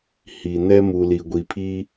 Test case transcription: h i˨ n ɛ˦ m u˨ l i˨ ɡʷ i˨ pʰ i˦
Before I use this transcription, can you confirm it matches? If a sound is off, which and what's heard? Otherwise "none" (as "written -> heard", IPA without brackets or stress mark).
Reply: none